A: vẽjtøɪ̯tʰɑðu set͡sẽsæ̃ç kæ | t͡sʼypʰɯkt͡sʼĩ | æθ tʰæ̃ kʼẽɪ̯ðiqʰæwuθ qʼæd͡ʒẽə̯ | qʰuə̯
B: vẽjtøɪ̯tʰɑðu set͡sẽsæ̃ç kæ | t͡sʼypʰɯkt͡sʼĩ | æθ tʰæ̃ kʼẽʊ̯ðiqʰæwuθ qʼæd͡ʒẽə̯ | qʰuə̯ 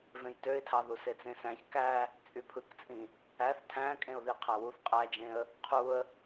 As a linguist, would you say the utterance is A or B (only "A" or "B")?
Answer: B